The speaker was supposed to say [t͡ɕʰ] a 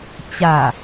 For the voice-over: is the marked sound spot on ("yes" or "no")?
no